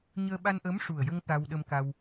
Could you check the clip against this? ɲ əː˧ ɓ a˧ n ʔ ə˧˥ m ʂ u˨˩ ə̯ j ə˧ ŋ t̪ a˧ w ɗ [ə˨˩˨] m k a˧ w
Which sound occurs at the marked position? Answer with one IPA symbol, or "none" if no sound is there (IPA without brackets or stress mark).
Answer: ə˧